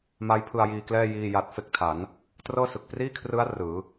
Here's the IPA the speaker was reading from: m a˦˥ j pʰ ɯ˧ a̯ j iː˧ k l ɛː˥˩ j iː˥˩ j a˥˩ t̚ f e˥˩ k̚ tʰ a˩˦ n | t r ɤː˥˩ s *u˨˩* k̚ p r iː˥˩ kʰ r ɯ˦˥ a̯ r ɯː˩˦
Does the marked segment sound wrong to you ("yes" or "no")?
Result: yes